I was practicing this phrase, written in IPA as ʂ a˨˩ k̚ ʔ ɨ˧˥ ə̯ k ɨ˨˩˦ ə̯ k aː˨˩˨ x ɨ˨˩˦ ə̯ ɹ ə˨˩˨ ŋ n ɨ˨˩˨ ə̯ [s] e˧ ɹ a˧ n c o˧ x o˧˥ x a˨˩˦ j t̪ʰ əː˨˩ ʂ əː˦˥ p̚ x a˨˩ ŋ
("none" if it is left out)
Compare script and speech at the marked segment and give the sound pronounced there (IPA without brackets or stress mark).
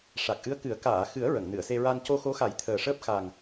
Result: s